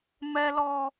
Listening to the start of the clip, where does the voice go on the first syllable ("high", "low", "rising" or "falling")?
high